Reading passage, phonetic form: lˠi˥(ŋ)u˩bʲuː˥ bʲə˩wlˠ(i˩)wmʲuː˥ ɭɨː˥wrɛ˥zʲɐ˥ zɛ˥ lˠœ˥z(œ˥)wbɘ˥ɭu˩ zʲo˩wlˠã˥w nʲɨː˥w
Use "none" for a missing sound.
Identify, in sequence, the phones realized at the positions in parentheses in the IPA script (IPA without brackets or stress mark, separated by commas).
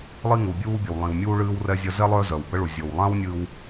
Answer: ŋ, ĩ˩, œ˩